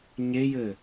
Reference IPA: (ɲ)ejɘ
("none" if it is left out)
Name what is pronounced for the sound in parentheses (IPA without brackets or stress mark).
ɲ